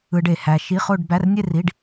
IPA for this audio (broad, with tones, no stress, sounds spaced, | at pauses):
ɯ˧ ɖ e˨˩ h æ˧ ʃ i˧˥˧ χ o˥˧ ɖ b æ˧˥˧ r nʲ e˥˧ r i˧˥˧ ɖ